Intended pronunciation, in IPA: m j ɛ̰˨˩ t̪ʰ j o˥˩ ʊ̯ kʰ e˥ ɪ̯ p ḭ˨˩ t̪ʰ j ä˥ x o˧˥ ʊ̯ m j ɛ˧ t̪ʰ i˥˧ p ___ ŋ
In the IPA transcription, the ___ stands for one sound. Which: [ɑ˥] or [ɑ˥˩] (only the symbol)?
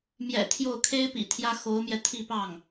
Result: ɑ˥˩